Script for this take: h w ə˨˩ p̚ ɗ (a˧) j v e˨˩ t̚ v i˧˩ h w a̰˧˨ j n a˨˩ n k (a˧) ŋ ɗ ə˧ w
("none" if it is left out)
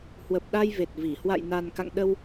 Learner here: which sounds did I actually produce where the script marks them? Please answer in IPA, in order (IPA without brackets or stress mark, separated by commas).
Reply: a˧, a̰˧˨